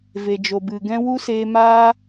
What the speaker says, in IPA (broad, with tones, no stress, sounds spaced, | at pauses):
v e˨ d͡ʒ o˨ b ɨ˨ ɡ ɛ̃˦ w u˦ s eː˧ m aː˦